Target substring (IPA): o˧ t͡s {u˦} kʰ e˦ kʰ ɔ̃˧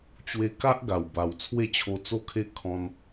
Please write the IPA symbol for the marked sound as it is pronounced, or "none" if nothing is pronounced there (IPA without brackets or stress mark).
o˦